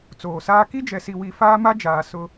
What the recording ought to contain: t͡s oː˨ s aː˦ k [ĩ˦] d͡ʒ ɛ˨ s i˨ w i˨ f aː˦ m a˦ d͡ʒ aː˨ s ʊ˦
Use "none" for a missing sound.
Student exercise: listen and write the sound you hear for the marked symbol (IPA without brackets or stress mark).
i˦